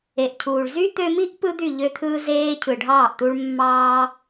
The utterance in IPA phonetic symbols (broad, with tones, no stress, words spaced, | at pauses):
e˨ʔcʰuː˨ɭ zy˦t̪ø˧mi˦ʔ pɯ˦d̪y˦˨ʎø˧t̪ʰɯː˧ zeː˦ cʰɯ˨ɖʱɑː˦˨ʔt̪u˦ɭ mːɑː˦